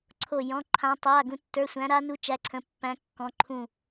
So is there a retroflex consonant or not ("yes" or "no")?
no